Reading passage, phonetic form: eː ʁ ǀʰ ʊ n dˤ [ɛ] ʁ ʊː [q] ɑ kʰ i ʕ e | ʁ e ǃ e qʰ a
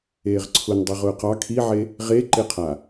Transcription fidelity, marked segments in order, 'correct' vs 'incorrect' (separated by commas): incorrect, correct